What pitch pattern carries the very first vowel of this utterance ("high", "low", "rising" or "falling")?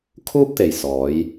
high